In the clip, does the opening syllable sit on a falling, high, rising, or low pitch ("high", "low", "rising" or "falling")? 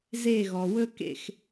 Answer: falling